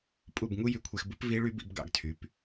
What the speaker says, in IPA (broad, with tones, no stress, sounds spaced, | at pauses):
pʼ u˥˩ b ŋ u˥ j y˧ kʷʰ e˧ x b ɯ˥ p v i˥ ɭ y˥ b ḭ˩˥ b ɡ ɑ̰˧ ɡ tʰ y˩˥ p